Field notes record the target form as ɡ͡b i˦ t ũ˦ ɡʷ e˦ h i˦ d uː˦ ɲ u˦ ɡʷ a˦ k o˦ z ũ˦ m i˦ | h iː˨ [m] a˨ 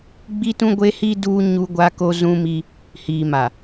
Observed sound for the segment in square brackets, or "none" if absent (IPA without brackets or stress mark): m